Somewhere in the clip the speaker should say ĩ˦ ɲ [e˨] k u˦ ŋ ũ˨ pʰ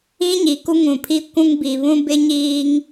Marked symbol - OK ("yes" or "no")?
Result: no